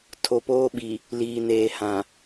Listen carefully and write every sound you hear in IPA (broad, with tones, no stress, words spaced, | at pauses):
tʰo˨poː˦ɓi˨ | liː˨neː˨hã˨